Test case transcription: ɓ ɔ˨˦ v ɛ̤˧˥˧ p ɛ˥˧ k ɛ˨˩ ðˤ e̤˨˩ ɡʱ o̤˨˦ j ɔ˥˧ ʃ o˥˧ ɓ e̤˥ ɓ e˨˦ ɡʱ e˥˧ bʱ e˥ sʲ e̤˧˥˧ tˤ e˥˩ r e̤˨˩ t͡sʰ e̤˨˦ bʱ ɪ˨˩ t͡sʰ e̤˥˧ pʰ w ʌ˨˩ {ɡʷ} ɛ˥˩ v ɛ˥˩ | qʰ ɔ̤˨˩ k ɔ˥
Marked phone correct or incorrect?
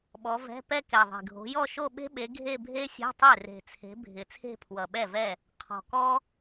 incorrect